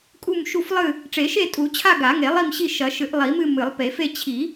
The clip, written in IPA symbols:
kʼ u˦˨ m ʃ u˦˨ f lˠ ɨ˦˨ | ʈ͡ʂ e˨˩˦ ʃ e˦˨ tʼ u˨˩˦ t͡ɕʰ a˦˨ ɡ a˨˩˦ ŋ e˨˩˦ lˠ i˦˨ m ɕ i˦˨ ʃ ɐ˨˩˦ ʃ ɨ˨˩˦ ʔ lˠ i˨˩˦ m ɨ˦˨ m ɨ˨˩˦ lˠ p e˨˩˦ f e˦˨ t͡ɕʰ i˨˩˦

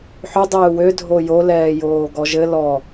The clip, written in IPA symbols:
ħ ʏ dˤ øː w ø dʱ o j o l ɛː j oː ɡ ɔ ʒ ɘ l ɔ

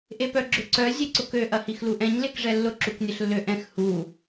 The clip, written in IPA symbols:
ʔ e p œ ɡ͡ǁ ʏ ǀ œ zʲ e ǀ ʊ k ø ʔ ɐ h i x l u ʔ ɛ̃ ɲ l e k ʐ ɛ lː ʊ ǁ u k nʲ ɐ ɬ lː ø ʔ ɛ̃ x h u

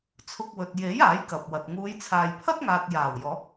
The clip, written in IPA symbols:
t͡sʰ ʊ˧ k̚ w ɵ˨ t̚ j e˨˥ j aː˨˥ j k ɐ˨ p̚ w ɐ˨ t̚ ŋ uː˨˧ j t͡sʰ aː˨ j pʰ ɐ˥ t̚ ŋ aː˨ t̚ j aː˨˩ w j ɔː˨˥ k̚

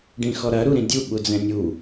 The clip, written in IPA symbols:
ɖ ĩ x ɔ ɾ ɐ ɾ u ɾ ĩ dʲ u ɓ u d͡z ɛ̃ nʲ u

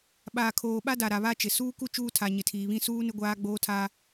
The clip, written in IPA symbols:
ɓ aː˨ kʰ oː˨ ɓ a˦ d a˨ ɾ a˨ β a˦ t͡ʃ ɪ˨ s uː˦ k u˦ t͡ʃ uː˦ tʰ a˨ ɲ ɪ˨ tʰ iː˨ β ĩ˦ s uː˦ n ɪ˦ ɡʷ aː˦ ɡ͡b oː˦ tʰ aː˦

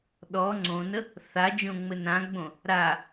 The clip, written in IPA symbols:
ɗ ɔ ŋ͡ǀ õ n ə | θ a d͡ʒ õ ŋ͡m ɘ n ã ɡ͡b õ | ɾ a

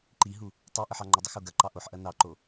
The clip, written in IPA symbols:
ǃ i ɦ u | tˤ i ʔ ə ħ ɑ ŋ͡ǃ ə dˤ ə x o ɡ ɐ ǃ ɑ ʔ o ħ ʔ ɐ n ɑ ǃ o

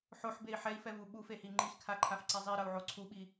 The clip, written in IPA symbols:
ħ o ħ b e i̯ ħ ɛ i̯ f ɛ v u ɓ u f e h i ŋ͡ǃ i x kʰ a ǃʰ a f ǀ e zˤ i ɾ ʌ u̯ ʕ o ǀʰ u ɓ i

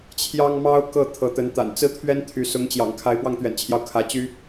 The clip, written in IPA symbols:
t͡ɕʰ j ɑ˥ ŋ m ɑ˥ ʊ̯ k ɤ˥˩ t̪ʰ ɤ˧˥ t̪ ə˧˥ n t̪ a̰˨˩ n t͡s ɹ̩˥ t̪ʰ ɥ ɛ˥ n t̪ʰ y˧˥ s ʊ˧˥ ŋ t͡ɕ j ɑ̰˨˩ ŋ kʰ a˧˥ ɪ̯ p w ɑ˥˩ ŋ t̪ ɥ ɛ̰˨˩ n t͡ɕʰ j ɑ˦ ʊ̯ kʰ ä˧˥ t͡ɕ y˥

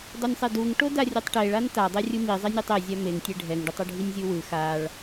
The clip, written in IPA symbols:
dˤ o nʲ sˤ ɛ d u ŋ ʈ o d a rʲ ɯ tˤ ʈ e ɭ a n t a dˤ e rʲ ɯ m i zˤ i nʲ ɯ tˤ e zʲ a m e ŋ tʲ e ɖʱ ɛ ŋ ɖ u tˤ o ɖʱ i nʲ zʲ u w ɯ x a ɭ

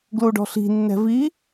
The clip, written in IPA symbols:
ɡ l u ɖ ɔ̤ ɬ i̤ nː ɛ̤ v i

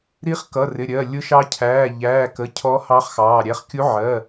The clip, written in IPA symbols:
ɾ i˧˥ χ k ʌ˩˧˩ r ɪ˩˧˩ ɾʲ ɜ˩˧˩ lʲ ʊ˧˥ ʃ ɑ˧˥ cʰ æː˩˧˩ ʎ æː˩˧˩ k ə˩˧˩ cʰ ɔ˧˥ h ɑ˧˥ χ x ɑː˩˧˩ ɾʲ æ˧˥ χ kʲ u˧˥ ʕ ɜ˩˧˩

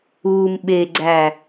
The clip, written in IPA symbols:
uː m ɓ e ɡ͡ǀ æ

